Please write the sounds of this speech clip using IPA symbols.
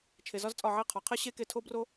t͡ʃʰ e˩ z ɒ˦˥ z t͡sʼ ɒ˧˩ ʕ i˧˩ qʰ ɒ˩ qʰ e˦˥ ɕ e˦˥ k e˧˩ tʰ o˦˥ b r o˦˥

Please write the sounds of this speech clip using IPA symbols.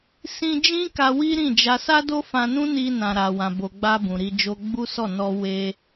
s ĩ˧ d͡ʒ ĩ˦ k a˧ w i˦ ɾ ĩ˦˨ d͡ʒ a˧ s a˦ d o˦ f ã˧ n ũ˦ n i˧ n ã˨ ɾ a˨ w ã˨ b o˨ ɡ͡b a˧ b ũ˨ ɾ i˧ d͡ʒ o˧ ɡ͡b u˦ s ɔ˦˨ n ɔ˧ w e˧

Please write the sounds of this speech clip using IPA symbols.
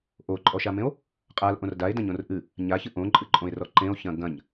ʔ o ǃʼ ɔ ʃ a m ẽ o̯ | qʼ a l ʔ õ r d a e̯ d ɐ̃ ɲ õ r ʔ ɨ | ɲ a ç ɨ ʔ õ ǃʼ ɨ ǃʼ õ e̯ r ɔ ǃ ẽ o̯ ç ɐ̃ ɡ ɐ̃ ɲ

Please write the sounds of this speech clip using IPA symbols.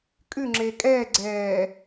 kʼ ʉ ŋ͡ǁ eː kʼ ɛː ɡ͡ǀ ɛː

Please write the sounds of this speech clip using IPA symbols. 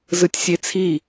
z ɯ tʲ sʲ e t͡sʰ i

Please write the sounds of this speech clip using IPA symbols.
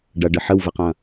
ɖ ɐ ɖ ə ħ ə w v ə q ɐ̃

